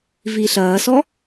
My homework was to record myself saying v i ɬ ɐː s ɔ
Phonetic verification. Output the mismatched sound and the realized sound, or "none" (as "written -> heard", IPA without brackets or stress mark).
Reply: none